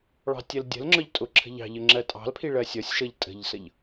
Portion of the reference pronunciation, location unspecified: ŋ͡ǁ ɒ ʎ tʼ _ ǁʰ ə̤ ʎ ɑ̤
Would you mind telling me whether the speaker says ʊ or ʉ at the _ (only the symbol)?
ʊ